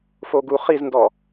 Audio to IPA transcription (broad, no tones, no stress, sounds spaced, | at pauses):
f o ɡ u χ i z n d ɔ